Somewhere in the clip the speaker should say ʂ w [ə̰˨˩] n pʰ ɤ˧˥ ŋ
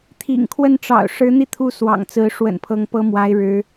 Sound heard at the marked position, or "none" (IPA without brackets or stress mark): ə̰˨˩